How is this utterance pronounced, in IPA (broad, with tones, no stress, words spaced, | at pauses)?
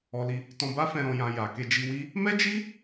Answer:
ɔ˧li˧ | tɔ̃˧ba˦fɛ̃˧ ɾɔ̃˧jã˧ ja˨ke˧d͡ʒi˧wi˦ | mɛ˦d͡ʒi˦